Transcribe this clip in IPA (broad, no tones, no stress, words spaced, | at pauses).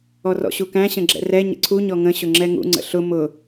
ɔrɔ̰ɕukæ̃ ɕə̃ɡ͡ǁɛ̰rɛ ɲə̰ǀʰu ɲɔŋə̃ ɕʊŋ͡ǁɛŋṵ ŋ͡ǀə̰ɬʊ mʊ